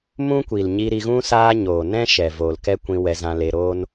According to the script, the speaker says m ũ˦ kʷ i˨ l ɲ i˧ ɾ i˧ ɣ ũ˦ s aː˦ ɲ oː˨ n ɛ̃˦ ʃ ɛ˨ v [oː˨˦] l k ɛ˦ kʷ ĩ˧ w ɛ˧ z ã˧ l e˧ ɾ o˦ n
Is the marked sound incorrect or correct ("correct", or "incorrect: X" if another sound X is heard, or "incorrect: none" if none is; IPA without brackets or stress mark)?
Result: incorrect: oː˨